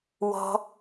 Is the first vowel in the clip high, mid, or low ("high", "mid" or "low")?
mid